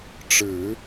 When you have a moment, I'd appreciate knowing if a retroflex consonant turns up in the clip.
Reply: yes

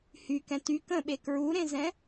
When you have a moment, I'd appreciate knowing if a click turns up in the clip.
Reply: no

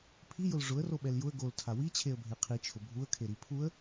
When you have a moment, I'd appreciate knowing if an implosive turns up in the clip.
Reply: yes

